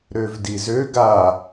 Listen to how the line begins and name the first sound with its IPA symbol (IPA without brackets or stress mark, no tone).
ɾ